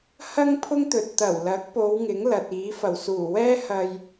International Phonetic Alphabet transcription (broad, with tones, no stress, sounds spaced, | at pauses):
h ɐ˥ ŋ pʰ ʊ˥ ŋ t̪ ɵ˨ t̚ t̪ ɐ˨˩ w l ɐ˨˥ k̚ p o˨˧ w ŋ ɪ˨˥ ŋ l ɐ˨ t̚ iː˨˥ f ɐ˨˩ w s uː˨˩ w ɛː˥ h ɐ˧ j